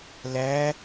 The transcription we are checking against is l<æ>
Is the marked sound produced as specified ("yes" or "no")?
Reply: yes